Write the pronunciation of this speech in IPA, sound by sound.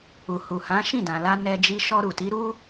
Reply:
u˨hu˨ hã˨˦ ʃĩ˦˨dã˨la˧ nɛ˧d͡ʒi˧ ʃɔ˧ɾu˨ti˨˦ɾu˦

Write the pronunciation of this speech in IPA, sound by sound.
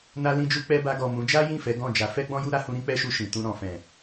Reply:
na˧lĩ˧d͡ʒu˧k͡pɛ˧ ba˧ ɡɔ˨ mũ˨˦ d͡ʒa˦jĩ˦˨ fɛ˨˦ɡɔ̃˦˨d͡ʒa˨˦ fɛ˦ɡ͡bɔ̃˦ju˦ ɾa˧hũ˧ ɾĩ˦k͡pɛ˦ʃu˧ ʃĩ˨tũ˧ ɾɔ̃˨fɛ̃˨

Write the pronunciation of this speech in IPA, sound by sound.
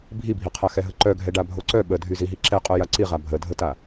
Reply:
bʱibʱiqʰaxɛ ɦəǃœɡʱɛ ɖabʱoǀœ ɓə dʱyziɦiǁɛ qʼœjaǀiʁa bʱədʱəta

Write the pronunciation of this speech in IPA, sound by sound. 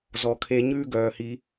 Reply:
zɔ˨kʰe˧ɲʉː˦ ɡœː˨hi˧

